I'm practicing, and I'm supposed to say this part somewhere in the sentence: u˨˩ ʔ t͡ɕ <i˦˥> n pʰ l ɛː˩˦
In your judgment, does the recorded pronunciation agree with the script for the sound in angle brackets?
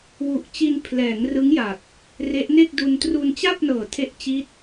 no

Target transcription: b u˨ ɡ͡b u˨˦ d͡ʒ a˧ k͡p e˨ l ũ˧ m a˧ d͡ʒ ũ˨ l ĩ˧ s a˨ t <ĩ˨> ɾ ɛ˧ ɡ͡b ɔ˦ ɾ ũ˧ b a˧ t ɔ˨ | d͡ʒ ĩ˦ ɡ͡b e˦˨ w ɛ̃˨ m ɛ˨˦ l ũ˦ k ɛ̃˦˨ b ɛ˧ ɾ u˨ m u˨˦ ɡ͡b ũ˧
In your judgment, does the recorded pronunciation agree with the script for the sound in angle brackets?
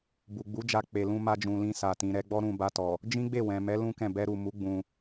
yes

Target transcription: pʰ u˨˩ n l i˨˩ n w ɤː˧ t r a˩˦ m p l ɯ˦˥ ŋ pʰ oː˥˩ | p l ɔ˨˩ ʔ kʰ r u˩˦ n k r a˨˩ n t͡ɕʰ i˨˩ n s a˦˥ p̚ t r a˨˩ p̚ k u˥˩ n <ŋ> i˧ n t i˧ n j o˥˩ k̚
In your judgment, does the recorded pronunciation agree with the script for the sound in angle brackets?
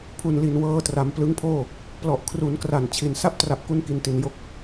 no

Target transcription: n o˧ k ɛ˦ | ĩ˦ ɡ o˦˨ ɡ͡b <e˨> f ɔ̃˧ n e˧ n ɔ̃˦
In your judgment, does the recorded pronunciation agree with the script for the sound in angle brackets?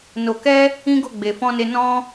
yes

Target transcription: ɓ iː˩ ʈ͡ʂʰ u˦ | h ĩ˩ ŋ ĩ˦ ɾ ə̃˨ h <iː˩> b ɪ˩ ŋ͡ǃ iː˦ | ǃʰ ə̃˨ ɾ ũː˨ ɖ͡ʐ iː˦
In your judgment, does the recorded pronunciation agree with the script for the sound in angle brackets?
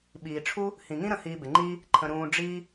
no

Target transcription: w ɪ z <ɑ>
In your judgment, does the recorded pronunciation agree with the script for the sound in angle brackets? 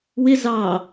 yes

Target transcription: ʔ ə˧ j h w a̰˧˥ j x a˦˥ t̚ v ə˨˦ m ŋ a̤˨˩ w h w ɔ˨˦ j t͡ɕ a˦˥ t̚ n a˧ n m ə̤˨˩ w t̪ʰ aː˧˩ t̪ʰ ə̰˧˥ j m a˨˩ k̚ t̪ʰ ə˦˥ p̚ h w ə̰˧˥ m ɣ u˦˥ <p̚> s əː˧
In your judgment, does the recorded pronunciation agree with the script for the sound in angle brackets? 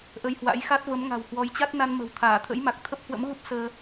yes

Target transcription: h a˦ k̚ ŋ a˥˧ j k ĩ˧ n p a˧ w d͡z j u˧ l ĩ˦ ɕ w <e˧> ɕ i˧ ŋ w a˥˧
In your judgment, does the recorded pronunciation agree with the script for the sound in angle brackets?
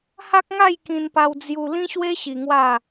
no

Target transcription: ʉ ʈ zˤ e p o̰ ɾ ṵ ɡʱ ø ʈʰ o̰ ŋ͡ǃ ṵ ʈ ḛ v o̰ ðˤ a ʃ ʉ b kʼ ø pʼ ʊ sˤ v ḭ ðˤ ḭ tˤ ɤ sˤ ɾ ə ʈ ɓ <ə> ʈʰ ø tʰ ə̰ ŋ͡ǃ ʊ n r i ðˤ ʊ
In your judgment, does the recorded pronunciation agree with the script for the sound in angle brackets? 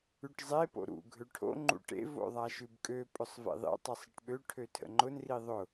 no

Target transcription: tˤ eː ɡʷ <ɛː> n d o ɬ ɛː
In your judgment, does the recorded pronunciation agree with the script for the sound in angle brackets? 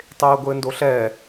no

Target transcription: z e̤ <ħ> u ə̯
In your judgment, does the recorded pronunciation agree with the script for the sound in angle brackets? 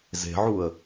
no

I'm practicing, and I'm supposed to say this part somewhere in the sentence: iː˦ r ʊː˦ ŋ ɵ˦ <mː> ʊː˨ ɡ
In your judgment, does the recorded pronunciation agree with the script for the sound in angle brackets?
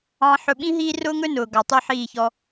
no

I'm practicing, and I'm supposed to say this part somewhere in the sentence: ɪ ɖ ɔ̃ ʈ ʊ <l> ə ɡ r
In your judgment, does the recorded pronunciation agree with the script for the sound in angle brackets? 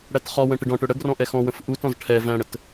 no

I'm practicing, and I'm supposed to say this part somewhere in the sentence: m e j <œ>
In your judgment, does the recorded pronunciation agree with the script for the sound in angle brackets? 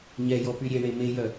yes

